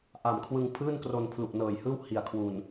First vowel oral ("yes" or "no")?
yes